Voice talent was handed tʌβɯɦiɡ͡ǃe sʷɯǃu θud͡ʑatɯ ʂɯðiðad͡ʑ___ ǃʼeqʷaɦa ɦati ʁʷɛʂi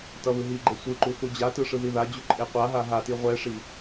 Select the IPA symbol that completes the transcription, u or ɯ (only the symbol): u